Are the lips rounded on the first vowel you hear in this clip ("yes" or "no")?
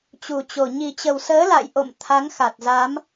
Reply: yes